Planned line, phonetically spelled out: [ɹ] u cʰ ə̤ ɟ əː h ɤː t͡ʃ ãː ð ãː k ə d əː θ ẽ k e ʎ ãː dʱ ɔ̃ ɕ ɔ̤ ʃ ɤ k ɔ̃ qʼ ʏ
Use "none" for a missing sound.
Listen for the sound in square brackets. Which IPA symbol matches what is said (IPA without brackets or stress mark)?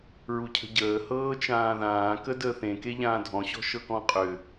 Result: ɹ